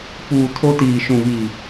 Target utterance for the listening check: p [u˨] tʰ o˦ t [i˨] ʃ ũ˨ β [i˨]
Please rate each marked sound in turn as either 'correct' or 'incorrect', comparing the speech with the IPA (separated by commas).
incorrect, incorrect, correct